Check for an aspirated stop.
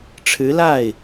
present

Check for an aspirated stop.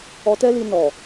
absent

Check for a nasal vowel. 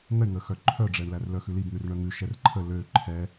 absent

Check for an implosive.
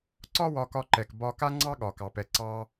present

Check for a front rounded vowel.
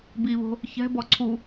absent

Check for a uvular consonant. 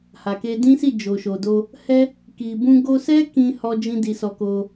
absent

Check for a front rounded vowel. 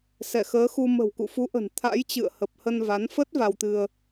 absent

